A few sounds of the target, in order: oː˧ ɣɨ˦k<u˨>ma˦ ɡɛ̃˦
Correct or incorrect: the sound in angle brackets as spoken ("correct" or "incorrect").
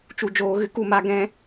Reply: correct